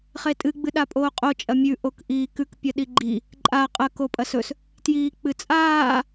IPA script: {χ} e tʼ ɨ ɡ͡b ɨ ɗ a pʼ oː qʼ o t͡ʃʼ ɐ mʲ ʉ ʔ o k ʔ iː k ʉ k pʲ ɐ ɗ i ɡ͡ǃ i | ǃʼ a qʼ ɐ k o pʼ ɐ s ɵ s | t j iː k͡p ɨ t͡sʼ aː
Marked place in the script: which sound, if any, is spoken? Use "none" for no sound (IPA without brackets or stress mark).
χ